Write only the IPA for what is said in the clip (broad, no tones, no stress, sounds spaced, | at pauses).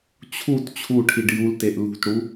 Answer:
t͡ɕʰ u t t͡ɕʰ u ʈʰ i ɖ j u l t e ʔ l ṳ t ɽ u